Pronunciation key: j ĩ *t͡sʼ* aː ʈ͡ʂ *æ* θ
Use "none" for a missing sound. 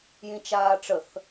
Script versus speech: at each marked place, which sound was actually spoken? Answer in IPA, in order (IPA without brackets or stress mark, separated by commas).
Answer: t͡ʃ, ə